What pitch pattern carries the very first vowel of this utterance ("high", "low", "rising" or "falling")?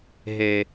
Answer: high